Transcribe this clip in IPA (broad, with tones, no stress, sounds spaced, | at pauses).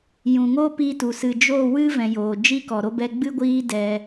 j ũ˨ ŋ oː˦ p i˧ t u˨ s ɨ˨ d͡ʒ o˦˨ w ɨ˦ v ɛ̃˨ j oː˨ d͡ʒ i˦ k ɔ˨ ɾ o˦ b ɛ˦ ɡ͡b ɨ˦ ɡʷ iː˦ d ɛ˧